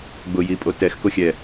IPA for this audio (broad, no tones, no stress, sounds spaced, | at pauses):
ɡ͡b ʊ j i pʼ o t ɛ x k o xʲ ɛ